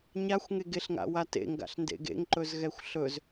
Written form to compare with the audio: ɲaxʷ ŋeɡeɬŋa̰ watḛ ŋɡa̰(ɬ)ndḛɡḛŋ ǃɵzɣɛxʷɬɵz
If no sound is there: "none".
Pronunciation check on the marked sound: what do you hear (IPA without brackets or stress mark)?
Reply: ɬ